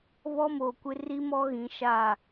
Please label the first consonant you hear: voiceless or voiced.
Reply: voiced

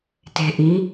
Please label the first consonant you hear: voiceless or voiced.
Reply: voiceless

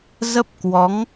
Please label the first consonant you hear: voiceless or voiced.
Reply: voiced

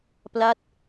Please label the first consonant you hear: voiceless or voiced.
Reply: voiceless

